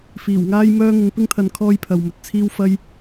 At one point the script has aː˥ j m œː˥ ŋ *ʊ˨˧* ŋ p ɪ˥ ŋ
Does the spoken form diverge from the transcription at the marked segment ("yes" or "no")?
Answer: no